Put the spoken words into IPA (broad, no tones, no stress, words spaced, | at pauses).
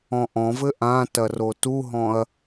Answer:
ɔ̃ʔɔ̃vɘ ʔãtɐ rotuɦɔ̃ɐ̯